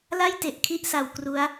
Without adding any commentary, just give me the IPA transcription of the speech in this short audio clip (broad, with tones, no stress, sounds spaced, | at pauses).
l a˥˩ j t e˨˩ ʔ kʰ i˥˩ ʔ s a˧ w k r u˦˥ a̯